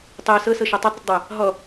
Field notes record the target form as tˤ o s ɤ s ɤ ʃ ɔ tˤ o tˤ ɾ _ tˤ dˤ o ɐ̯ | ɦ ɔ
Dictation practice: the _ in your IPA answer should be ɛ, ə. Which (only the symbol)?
ə